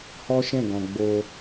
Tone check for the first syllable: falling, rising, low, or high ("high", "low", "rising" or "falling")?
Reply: high